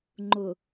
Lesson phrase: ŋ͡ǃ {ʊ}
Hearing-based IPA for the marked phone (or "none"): ʊ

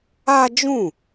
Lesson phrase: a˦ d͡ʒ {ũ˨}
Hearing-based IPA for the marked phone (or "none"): ũ˦˨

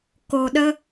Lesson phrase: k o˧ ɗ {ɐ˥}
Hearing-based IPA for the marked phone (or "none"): ə˥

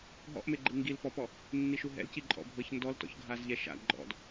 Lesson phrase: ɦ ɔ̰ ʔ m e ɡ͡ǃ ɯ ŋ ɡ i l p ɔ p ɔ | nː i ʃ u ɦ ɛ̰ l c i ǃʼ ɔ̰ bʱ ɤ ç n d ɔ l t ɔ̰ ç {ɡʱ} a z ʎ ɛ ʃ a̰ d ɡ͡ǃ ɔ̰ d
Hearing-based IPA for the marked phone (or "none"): ɡʱ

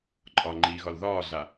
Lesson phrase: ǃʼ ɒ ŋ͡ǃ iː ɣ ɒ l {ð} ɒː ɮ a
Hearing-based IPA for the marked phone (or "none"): ð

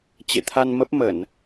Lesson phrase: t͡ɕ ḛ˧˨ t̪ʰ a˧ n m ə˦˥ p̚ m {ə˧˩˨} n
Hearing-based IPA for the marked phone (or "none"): ə˧˩˨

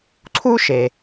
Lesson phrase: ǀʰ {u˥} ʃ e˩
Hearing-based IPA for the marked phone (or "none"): u˥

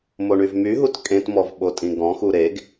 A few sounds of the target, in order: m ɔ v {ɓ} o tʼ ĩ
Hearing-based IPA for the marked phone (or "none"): ɓ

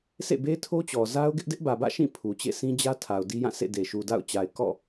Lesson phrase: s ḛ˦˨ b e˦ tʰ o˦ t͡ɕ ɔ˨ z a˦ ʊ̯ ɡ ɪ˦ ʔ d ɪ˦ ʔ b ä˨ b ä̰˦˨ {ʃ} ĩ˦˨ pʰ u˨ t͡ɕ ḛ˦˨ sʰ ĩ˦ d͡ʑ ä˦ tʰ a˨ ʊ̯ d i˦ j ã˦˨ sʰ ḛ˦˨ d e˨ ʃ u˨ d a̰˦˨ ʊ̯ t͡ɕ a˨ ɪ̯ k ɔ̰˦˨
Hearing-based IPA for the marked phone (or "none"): ʃ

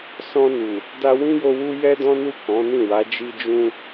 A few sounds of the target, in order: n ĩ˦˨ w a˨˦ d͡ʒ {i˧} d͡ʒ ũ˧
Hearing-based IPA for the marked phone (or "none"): i˧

